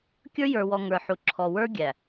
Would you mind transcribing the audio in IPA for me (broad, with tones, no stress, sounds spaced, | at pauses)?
kʲ ə˞˦ j ə˞˨ w ɔ˨ ŋ ə˞˨ ħ u˨ ǁʰ ɔ˨ w ə˞˦ ɡʲ æ˨